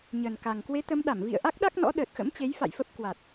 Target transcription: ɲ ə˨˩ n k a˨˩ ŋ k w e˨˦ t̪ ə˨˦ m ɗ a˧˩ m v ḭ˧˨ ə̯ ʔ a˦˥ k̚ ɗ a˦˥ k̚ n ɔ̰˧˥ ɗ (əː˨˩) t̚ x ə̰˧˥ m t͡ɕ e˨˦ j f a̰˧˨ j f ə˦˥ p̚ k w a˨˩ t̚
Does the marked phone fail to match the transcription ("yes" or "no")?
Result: no